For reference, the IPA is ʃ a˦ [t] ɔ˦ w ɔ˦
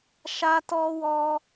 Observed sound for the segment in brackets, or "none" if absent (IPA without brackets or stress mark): t